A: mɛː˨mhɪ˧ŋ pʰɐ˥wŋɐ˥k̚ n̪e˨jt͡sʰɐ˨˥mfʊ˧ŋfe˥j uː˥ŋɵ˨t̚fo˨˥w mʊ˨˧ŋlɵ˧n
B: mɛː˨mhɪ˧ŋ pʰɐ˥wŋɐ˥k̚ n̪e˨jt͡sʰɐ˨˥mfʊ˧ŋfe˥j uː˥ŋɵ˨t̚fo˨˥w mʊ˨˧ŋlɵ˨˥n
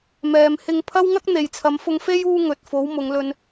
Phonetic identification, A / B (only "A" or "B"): A